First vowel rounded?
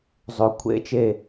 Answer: yes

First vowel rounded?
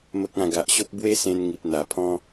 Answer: no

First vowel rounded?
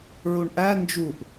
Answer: yes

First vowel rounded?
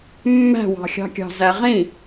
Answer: no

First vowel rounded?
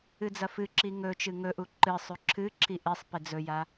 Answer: no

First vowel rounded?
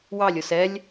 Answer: no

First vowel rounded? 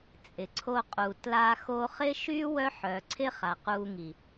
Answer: no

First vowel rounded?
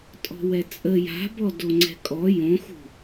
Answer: yes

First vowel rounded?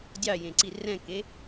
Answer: no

